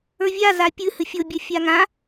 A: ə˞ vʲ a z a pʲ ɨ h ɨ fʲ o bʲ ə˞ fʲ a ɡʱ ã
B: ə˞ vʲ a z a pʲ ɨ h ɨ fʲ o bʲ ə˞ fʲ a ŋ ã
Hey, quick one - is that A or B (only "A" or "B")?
B